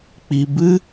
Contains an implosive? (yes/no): no